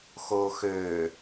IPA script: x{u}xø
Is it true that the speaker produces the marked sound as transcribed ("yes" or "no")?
no